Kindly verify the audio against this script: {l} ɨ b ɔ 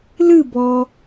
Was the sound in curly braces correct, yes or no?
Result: yes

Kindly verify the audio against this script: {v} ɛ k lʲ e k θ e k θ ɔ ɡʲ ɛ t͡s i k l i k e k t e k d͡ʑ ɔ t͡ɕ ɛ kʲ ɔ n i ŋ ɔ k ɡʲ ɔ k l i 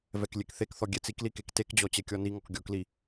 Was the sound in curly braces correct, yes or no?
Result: yes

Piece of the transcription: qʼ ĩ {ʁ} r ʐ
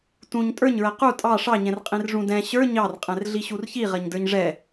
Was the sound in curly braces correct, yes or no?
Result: no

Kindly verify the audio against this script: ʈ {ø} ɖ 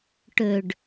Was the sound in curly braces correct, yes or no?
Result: yes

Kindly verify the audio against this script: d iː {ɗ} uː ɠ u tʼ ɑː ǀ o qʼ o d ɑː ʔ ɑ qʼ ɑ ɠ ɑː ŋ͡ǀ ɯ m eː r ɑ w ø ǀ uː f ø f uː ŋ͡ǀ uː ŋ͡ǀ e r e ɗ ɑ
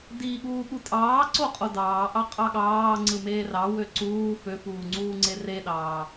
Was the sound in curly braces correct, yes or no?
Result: no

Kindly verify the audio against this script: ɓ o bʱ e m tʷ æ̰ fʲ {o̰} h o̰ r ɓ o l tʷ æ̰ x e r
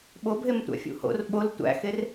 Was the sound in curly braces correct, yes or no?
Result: no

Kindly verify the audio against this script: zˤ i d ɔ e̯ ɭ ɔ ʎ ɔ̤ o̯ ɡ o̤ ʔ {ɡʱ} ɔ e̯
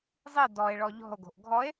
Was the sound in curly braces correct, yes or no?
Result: yes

